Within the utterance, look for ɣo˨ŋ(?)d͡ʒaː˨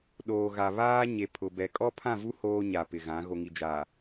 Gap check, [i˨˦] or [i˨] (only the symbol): i˨